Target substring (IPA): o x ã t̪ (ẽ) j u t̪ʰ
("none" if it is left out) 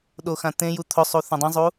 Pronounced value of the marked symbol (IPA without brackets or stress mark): ẽ